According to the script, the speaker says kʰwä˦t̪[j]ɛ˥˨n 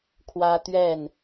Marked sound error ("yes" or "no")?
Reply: yes